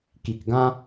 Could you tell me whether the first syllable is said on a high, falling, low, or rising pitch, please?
low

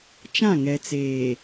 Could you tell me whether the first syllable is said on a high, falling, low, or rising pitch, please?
falling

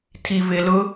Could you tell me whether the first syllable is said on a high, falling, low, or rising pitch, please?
low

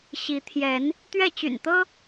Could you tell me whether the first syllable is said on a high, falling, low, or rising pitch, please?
rising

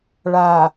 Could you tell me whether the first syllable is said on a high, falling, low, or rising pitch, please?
low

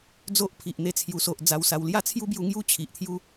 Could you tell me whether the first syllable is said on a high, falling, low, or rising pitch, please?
high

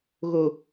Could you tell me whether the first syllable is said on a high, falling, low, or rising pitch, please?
low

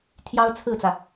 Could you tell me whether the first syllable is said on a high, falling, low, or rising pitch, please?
high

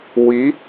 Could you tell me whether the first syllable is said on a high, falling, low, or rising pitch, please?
rising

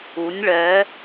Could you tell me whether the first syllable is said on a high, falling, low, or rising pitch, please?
rising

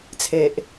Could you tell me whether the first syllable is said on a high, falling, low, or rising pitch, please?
low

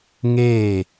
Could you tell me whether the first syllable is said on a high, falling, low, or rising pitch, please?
falling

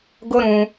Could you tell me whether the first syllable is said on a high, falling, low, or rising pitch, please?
high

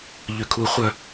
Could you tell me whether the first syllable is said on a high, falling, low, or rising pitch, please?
low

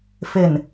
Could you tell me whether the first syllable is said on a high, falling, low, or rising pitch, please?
low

